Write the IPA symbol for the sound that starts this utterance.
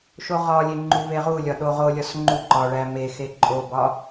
ʃ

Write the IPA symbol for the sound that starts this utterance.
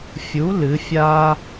fʲ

